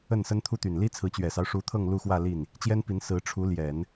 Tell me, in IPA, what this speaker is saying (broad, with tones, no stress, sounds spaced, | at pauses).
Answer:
ə˥˩ n s ə˥ n t̪ʰ u˥ t̪ y˨˩ n l i˥ t͡sʰ ɹ̩˧˥ t͡ɕ ɥ ɛ˨˩ s ɑ˦ ʊ̯ ʂ u˧˥ t̪ʰ ɤ˥˧ ŋ l u˥˧ x w ä˥˧ l i˥˩ n | t͡ɕ j ɛ˥ n p i˧˥ n s ɹ̩˧˥ ʈ͡ʂʰ u˧˥ l j ɛ˨˩˦ n